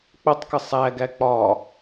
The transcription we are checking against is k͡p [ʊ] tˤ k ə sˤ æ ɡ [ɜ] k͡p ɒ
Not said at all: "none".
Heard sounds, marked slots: ʊ, æ

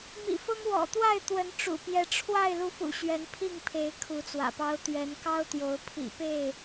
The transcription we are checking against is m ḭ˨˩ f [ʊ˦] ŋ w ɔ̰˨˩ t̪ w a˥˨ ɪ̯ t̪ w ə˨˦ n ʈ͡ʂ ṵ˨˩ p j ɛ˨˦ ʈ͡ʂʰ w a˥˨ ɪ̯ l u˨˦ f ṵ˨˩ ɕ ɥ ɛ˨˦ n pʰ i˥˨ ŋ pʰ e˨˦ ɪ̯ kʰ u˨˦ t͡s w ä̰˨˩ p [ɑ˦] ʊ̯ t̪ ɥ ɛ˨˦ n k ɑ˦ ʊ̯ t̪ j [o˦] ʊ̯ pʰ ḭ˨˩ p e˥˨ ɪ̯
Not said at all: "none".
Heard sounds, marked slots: ʊ˦, ɑ˦, o˨˦

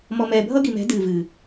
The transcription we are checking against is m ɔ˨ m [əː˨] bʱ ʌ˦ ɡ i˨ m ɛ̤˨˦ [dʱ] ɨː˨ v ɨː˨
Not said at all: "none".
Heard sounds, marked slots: ɛː˨, d

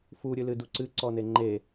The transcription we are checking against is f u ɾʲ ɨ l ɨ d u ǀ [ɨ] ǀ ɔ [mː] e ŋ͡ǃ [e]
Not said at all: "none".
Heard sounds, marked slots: ɨ, n, e

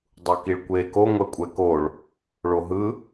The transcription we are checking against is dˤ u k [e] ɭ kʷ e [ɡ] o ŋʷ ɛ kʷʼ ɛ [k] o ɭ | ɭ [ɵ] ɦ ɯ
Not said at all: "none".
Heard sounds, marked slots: i, k, k, o

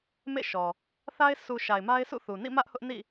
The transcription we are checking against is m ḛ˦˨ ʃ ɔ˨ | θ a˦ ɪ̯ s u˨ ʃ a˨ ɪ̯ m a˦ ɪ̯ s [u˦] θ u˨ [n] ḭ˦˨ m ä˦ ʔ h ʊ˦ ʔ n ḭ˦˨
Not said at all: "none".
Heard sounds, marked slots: ṵ˦˨, n

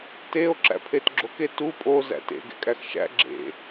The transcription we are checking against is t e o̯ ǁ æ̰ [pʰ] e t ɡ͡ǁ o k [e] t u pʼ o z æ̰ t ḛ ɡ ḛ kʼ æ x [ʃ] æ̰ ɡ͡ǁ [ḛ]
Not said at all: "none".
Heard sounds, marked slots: pʰ, e, ʃ, ḛ

